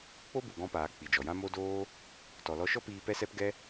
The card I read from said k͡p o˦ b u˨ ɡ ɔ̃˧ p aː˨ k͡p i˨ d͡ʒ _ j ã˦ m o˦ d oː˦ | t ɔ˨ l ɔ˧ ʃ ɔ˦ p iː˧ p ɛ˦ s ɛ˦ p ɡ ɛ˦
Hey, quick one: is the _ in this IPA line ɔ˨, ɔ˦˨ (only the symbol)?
ɔ˨